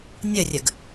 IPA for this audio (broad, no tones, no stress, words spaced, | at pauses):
nʲərʲəɡ